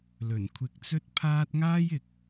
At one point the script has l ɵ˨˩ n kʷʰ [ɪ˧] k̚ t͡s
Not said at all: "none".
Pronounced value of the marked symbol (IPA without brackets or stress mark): ɪ˧